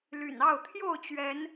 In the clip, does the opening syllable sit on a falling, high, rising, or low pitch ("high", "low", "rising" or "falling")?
low